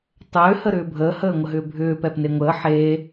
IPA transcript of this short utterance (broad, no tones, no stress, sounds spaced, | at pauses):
tˤ ʏː h ə ɾ ʏː bʱ əː h əː ŋʷ ə ɦ ʏː bʱ ʏː p ɛ p n e ŋʷ əː ħ eː